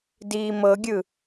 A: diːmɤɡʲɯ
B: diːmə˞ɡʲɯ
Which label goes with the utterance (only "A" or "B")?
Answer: A